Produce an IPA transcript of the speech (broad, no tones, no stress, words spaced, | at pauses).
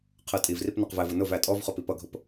qʰə tʼivrip nʌqvævə nʊv ætʼɔvχʊ pipʌɡʱʊp